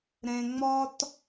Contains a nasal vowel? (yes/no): yes